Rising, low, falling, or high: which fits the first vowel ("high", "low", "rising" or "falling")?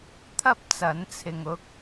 high